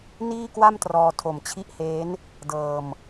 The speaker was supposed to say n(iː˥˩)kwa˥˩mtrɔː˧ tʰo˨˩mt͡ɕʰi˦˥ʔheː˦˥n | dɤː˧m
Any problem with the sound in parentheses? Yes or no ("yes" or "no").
no